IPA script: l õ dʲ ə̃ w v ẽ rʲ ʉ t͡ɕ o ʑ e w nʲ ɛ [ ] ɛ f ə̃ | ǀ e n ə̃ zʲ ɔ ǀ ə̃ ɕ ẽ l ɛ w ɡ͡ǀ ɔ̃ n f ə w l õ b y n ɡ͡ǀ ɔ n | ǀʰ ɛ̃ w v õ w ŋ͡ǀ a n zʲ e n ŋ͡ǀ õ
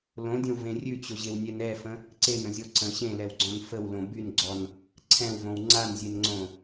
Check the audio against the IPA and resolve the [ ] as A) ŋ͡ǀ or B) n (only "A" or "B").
B